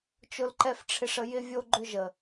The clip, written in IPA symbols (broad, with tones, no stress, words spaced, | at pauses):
t͡ʃʊ˨lǃɛ˨fʈ͡ʂʰɪ˨ʂ ə˨jɪ˧vʲo˧ɡ͡ǃʏ˧ ʒə˨